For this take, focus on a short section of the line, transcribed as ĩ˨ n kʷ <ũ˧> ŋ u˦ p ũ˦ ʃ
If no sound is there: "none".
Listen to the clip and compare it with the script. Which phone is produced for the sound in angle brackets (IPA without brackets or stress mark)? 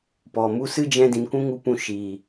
ũ˦